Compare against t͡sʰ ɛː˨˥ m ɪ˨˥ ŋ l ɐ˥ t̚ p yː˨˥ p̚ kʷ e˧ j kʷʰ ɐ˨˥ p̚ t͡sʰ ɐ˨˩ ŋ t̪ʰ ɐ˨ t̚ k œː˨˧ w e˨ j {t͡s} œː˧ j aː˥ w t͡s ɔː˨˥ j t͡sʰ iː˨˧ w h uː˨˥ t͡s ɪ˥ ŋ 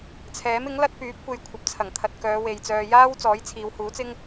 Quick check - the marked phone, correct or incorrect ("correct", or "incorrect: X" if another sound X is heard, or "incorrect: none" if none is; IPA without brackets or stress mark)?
correct